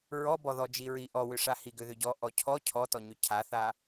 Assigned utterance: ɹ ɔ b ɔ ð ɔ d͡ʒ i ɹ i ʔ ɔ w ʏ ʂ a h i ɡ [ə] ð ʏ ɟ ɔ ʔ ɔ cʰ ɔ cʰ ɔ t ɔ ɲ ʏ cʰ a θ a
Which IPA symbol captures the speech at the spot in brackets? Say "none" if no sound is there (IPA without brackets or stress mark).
ʏ